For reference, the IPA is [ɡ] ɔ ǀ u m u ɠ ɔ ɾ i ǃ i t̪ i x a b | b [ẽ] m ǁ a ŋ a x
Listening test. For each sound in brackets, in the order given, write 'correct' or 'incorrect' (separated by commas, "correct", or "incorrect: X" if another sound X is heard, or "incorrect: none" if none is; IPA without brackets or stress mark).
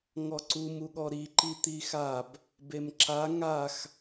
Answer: incorrect: ŋ, incorrect: e